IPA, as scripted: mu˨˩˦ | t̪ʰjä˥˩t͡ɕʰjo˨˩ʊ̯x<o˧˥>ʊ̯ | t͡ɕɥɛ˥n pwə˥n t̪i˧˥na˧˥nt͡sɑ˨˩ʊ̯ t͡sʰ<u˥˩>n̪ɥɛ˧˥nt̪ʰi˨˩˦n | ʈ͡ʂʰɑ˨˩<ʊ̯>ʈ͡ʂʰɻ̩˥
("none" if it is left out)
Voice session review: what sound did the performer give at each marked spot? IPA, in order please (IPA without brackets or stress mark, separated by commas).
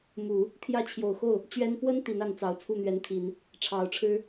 o˥˩, u˥˩, ʊ̯